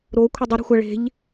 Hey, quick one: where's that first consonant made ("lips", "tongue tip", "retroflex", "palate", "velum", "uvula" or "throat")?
tongue tip